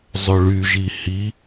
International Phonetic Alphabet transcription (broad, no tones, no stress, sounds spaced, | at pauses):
zˤ ø ɭ y ʒ i h i